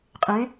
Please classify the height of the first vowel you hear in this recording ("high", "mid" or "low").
mid